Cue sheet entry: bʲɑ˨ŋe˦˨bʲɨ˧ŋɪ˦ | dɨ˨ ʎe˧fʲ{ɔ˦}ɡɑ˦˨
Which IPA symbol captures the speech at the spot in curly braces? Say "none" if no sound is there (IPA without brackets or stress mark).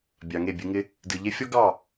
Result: ɔ˦